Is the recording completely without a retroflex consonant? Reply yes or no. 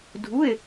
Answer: yes